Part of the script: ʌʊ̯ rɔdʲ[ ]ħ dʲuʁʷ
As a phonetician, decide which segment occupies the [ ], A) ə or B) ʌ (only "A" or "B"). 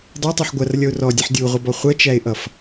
B